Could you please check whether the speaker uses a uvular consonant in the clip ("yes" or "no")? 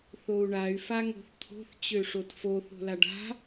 no